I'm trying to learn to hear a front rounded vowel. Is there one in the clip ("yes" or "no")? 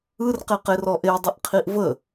yes